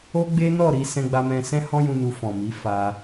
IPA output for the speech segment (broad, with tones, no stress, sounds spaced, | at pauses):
o˦ ɡ͡b e˦ n ɔ˦˨ ɾ i˧ s ɛ̃˧ ɡ͡b a˧ m ɛ̃˧ s ɛ̃˦ h ɔ̃˦ j ũ˧ n u˧ f ɔ̃˨ m i˨˦ f a˧